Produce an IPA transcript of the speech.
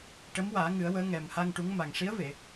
ʈ ə˧˥ m w aː˨˩˦ ŋ ɨ˨˩˦ ə̯ w əː˧˥ ŋ ɛ˨˩ m h a˧ ŋ ʈ u˧˥ ŋ m a˨˩ ŋ ʂ i˧˥ ə̯ v e˨˩˨

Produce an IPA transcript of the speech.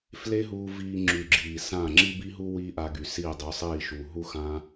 f l e˦ ɦ uː˧ v iː˧ ŋ͡ǁ y˨ ɡ͡ǁ iː˨ s ã˦˨ ŋ͡ǁ i˦ b i˦ ɦ u˦ w iː˦ ʔ a˧ ɡ y˨ s iː˦˨ dˤ y˨˦ sˤ iː˦˨ ʃ uː˨ ɦ u˦ x ã˦

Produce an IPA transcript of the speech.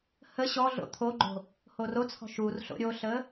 h ə ɕ ɔ ɮ o̰ t̪ʰ o ɡ͡ǃ o̤ | h o r o t͡sʰ ɔ̤ ʃ u r ɬ o̰ ɾʲ o ɬ ə

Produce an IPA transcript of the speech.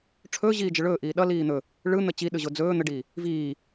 ʈ͡ʂʰ ɵː ʑ iː d͡ʒ ə ɭ ɵː ʔ iː ɗ ʌ l iː n̪ ɵ | ɭ ɯ n̪ ə t͡ɕ i ɗ ɯ ʑ o d͡z ɵː n̪ ə ɖ iː | v iː

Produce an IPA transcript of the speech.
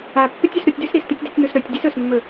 a pː ɨ tʲ ʉ s ɾ u tʲ d ʉ s ɾ i s t̪ ʉ tʲ d i tʲ n̪ u s ɾ ɵ tʲ dʲ ɨ s ɵ s mː ɵ

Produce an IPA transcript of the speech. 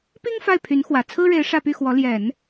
p i˥ ŋ f a˥˩ ɪ̯ pʰ y˧˥ n x w ä˨˩ t͡sʰ ɹ̩˥ ɻ e˧˥ ɪ̯ ʂ ä˥˧ p y˥˩ x w ɔ˧˥ l j ɛ˨˩˦ n

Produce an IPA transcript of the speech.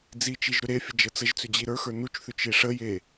d͡z i t͡ʃ i ʒ ɾ ʏ ɾ e fʲ ə d͡ʒ ə t͡s ə ʒ t͡s ʏ d͡ʑ i ɾ ə˞ x ə˞ n u t͡ʃ θ ʏ t͡ʃ e ʂ ə j e

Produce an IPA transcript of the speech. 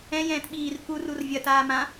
ɛ̃ j ɛ̃ː t ɓ iː r k u r u r vʲ ɐ t aː m ã

